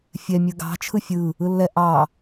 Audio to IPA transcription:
fʲ ɛ mʲ ɯ ɡ ɑ̤ t͡ʃʰ ɯ fʲ ɯ | ɯ lː ɛ ʔ ɑ

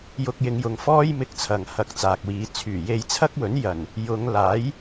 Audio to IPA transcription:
j ʊ˧ k̚ j ɪ˨˧ ŋ j ʊ˨ ŋ f ɔː˥ j m ɪ˧ k̚ t͡sʰ ɐ˨ ŋ h ɐ˧ k̚ t͡s aː˨ k̚ w iː˨˧ t͡sʰ yː˨˩ j e˧ j t͡sʰ ɐ˥ k̚ w ɵ˨˥ n j ɐ˨˩ n | j ʊ˨˧ ŋ l aː˨˥ j

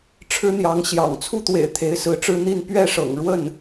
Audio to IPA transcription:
ʈ͡ʂʰ ɻ̩˥ n̪ j ɑ˧˥ ŋ ɕ j ɑ̰˨˩ ŋ t͡sʰ u˥˩ t̪ w ḛ˨˩ ɪ̯ t̪ʰ e˧˥ ɪ̯ s ɹ̩˧˥ ʈ͡ʂ ɻ̩˥ n̪ i˥˧ n p ɥ ɛ˥˩ ʂ ɤ̰˨˩ ŋ ɻ w ə˥˩ n

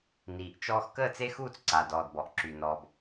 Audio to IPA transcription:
n iː˨ ʔ t͡ʃ ɔː˦ x k əː˦˨ t͡s e˦ x uː˦˨ t͡s ǀ a˨ d ɔː˨ d b ɔ˨ ʔ ǁ y˨ n ɔː˨ b

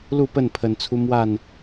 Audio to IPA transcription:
l u˥˨ p ə˥˨ n pʰ ə˨˩ n t͡sʰ u˦ m w a˥˨ n

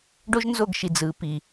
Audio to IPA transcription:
ɖ o˦ ʒ n z o˦˨ ɡ ʃ i˨ d͡z ɯ˨˦ p i˨

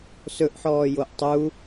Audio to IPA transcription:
s ɵ ʔ ħ ɔː j o ʔ tˤ u

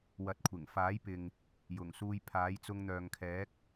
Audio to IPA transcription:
w ɐ˨ t̚ kʷʰ ɪ˨˩ ŋ f aː˨˥ j p ɪ˨ ŋ | j ʊ˨˩ ŋ s uː˧ j pʰ aː˨˥ j t͡s ʊ˧ ŋ n̪ œː˨ ŋ kʰ ɛː˨˥ k̚

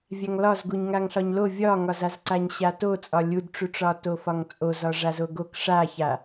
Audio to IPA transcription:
vʲ a ŋ l ɒ z ɡ u ɲ ŋ a ŋ ɬ ɒ ɲ l o vʲ ɒ ŋ ɒ z a z ǀ a ɲ ɕ a t o t͡sʼ ɒ lʲ u d ʈ͡ʂ u ʈ͡ʂ ɒ t o f ɒ ŋ t͡sʼ o z ɒ ʐ a z o ɡ o k ʂ a ç a

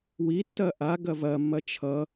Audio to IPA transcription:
w i tː ɐ ʔ a ɡ ɐ v ɐ mː ɐ t͡ʃʰ ʌ

